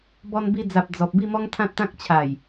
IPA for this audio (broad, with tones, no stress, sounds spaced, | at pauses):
b ɔ˧ n b i˧ d͡z a˨ p̚ d͡z ɔ˨ p̚ b i˥˧ m ɔ˦ ŋ t̪ʰ ã˦ t̚ t̪ ã˦ k̚ t͡ɕʰ a˨˩ j